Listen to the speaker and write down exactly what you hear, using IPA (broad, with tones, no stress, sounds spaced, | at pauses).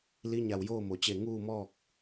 l i˧˥ ɲ a˧˩ w j oː˥˨ m o˩ t͡ɕ e˧˩ ŋ uː˥˨ m ɔː˥˨ k̚